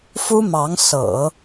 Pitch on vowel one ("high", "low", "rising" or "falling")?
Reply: high